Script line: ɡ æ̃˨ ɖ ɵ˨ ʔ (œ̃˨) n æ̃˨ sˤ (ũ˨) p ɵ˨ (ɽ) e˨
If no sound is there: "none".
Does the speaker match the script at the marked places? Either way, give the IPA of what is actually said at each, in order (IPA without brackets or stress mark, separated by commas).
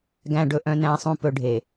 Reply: œ̃˨, ũ˨, ɖʱ